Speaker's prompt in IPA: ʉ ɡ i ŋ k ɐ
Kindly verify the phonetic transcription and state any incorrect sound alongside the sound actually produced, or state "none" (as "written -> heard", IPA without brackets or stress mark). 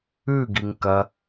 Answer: none